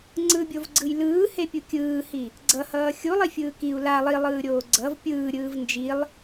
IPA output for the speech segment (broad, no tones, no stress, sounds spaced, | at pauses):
ŋ͡ǀ ɯ bʲ o v ɡ͡ǀ ɯ j l ɯː h e pʲ u kʲ ɯː h i | ɡ͡ǀ ʌ h ʌː xʲ u lˠ i fʲ ɯː k i u̯ l a lˠ i lˠ ɯː ɾʲ oː ɡ͡ǀ ʌ v pʲ ɯː ɾʲ ɯː v n d͡ʒ i lˠ